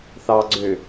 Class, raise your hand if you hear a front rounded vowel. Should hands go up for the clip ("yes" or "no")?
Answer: yes